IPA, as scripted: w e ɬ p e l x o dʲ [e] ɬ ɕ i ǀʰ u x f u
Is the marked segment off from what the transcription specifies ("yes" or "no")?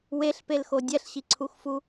yes